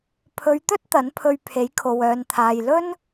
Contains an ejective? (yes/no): no